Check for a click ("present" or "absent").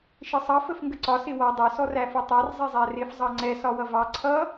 present